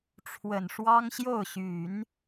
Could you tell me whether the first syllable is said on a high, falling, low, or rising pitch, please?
low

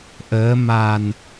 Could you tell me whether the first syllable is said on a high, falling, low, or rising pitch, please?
rising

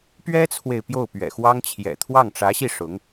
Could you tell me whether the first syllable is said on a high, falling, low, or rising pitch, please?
high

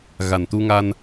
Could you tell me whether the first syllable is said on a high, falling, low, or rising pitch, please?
low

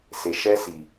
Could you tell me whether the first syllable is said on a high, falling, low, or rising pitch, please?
low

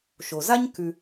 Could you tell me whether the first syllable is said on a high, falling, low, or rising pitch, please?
low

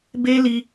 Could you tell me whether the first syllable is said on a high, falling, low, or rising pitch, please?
high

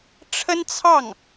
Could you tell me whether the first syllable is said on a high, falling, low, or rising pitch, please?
high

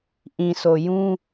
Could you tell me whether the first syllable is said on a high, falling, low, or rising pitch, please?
low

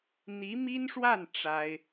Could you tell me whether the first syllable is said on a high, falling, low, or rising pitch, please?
rising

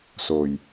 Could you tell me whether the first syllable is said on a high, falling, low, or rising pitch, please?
low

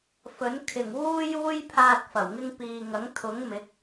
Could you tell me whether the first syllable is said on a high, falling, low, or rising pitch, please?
rising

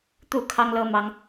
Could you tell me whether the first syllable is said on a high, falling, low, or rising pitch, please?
falling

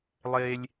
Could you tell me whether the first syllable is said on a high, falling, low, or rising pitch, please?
high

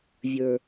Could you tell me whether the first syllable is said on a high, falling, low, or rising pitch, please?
low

